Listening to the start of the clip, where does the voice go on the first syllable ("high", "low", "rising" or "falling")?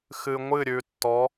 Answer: low